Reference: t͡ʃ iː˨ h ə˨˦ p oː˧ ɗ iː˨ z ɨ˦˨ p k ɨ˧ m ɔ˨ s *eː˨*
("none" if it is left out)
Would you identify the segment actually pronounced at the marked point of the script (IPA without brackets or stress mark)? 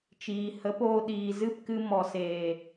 eː˨